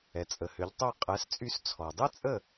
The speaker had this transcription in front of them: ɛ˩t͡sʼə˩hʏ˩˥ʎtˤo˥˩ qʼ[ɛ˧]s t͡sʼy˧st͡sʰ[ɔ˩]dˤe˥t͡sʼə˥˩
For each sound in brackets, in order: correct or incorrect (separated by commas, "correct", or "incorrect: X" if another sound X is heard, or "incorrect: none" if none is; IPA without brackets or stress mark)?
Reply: incorrect: ɛ˩˥, correct